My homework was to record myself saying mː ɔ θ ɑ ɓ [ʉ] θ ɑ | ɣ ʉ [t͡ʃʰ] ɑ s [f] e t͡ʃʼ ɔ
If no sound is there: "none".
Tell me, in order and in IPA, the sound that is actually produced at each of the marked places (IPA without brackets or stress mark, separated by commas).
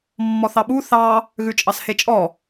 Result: u, t͡ʃʼ, h